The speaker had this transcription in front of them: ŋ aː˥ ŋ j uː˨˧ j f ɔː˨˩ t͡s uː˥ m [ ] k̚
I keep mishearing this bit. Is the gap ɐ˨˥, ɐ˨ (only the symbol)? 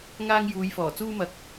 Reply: ɐ˨˥